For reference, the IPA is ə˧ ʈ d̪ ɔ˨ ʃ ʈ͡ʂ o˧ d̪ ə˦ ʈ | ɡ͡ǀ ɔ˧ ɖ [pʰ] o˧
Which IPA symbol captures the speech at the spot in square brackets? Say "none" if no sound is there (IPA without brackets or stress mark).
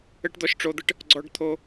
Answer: t̪ʰ